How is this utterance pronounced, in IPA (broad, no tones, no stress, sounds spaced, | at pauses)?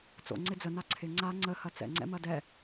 t͡s o̰ ŋ͡ǀ ɪ d͡z ə n a ǀʰ ɪ ŋ͡ǀ a ŋ͡ǀ ə h ɐ t͡s ɛ̰ ŋ͡ǀ ɛ̰ m ɐ d ɛ